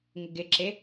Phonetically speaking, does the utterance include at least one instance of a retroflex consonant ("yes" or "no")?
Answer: no